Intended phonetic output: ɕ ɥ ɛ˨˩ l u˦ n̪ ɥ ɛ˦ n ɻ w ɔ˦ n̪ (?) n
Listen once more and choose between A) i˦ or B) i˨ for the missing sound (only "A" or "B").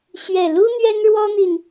B